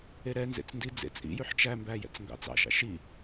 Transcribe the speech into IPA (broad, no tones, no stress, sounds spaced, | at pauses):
e ɾ ɛ n z ḛ t͡s n d i d͡z ḛ t͡sʼ ḭ j ʉ ħ t͡ʃ æ m b æ j ɛ̰ t͡s ŋ ɡ ɑ̰ t͡s ɑ̰ ʃ ɑ̰ ʃ i